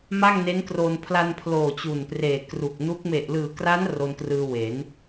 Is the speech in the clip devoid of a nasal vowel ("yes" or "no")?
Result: yes